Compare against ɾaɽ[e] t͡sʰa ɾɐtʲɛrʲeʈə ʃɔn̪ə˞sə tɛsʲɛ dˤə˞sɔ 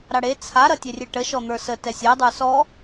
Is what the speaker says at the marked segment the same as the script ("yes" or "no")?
yes